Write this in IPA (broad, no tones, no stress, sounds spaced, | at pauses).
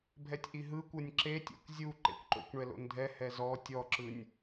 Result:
bʱ ɛ tʲ ʔ i ɦ ɯ kʷ ɤ nʲ ǁ e tʲ ḛ kʷ zʲ u ǃ ḛ kʷ ǃ o̰ kʷ ɳ ɛ l o̰ n dʱ ɛ h ɛ z ɔ tʲ ɔ ǁ ɯ nʲ